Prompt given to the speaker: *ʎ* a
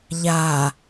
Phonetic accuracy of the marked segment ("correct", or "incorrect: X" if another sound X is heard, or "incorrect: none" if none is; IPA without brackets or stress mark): correct